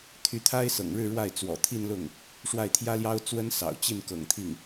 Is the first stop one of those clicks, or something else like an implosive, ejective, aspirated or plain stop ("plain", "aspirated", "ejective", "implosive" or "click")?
aspirated